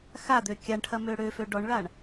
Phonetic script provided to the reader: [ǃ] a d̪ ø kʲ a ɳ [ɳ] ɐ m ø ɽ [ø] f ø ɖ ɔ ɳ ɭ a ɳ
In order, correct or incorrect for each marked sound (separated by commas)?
incorrect, incorrect, correct